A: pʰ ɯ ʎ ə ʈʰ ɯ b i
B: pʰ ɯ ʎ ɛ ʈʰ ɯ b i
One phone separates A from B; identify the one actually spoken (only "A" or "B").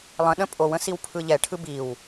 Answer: B